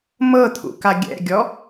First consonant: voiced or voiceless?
voiced